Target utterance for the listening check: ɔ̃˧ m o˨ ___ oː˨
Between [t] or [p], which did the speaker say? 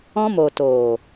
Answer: t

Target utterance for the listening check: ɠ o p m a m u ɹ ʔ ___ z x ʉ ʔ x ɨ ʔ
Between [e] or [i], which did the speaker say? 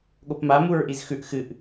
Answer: i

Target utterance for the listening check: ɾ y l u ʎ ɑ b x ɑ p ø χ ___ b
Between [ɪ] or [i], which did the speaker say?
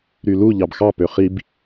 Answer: i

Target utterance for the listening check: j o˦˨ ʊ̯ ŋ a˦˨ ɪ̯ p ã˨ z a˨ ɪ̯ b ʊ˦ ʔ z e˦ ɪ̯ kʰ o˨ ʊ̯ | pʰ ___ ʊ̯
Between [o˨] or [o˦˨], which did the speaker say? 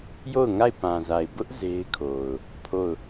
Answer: o˦˨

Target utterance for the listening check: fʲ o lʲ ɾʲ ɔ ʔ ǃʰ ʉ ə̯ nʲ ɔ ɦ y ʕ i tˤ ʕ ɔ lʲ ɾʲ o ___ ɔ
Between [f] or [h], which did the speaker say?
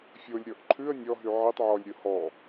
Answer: h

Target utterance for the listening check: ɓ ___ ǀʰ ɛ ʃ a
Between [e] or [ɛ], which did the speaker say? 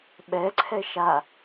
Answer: ɛ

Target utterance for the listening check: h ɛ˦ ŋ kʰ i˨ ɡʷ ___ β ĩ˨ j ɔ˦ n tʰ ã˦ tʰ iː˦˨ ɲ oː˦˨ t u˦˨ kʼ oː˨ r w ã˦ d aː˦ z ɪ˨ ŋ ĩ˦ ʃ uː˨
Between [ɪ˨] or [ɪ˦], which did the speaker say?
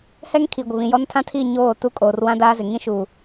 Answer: ɪ˨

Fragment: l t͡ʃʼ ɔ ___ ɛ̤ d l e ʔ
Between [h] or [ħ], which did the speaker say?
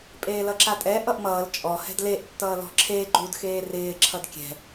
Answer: h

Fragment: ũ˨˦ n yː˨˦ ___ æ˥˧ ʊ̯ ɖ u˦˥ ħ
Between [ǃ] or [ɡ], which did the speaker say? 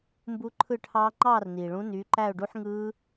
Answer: ǃ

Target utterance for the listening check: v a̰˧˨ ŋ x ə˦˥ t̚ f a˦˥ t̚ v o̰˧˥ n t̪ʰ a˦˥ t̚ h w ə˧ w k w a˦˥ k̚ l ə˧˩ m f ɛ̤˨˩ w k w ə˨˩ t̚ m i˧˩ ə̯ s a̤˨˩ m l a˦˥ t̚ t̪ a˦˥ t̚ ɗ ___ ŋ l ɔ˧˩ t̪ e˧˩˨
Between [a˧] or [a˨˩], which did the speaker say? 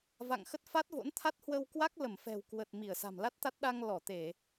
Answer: a˧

